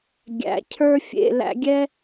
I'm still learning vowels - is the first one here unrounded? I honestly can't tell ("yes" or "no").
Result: yes